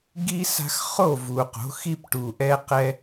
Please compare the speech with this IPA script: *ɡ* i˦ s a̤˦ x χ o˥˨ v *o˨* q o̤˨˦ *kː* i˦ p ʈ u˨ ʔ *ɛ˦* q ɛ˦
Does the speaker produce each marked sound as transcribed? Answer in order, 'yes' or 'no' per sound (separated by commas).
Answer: yes, no, no, yes